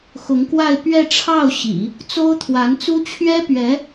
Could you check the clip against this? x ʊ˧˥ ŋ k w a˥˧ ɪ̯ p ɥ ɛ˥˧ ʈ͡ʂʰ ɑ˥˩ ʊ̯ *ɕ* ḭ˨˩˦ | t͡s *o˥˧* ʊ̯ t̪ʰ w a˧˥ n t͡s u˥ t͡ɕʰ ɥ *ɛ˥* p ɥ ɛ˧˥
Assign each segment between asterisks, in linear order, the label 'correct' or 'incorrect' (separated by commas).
correct, incorrect, correct